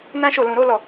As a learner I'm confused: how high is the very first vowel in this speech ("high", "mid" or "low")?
low